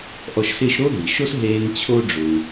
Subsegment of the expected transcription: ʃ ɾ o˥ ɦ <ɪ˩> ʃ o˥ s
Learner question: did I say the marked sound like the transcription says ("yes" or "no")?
no